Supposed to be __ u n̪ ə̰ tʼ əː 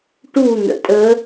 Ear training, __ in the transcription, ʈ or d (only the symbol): ʈ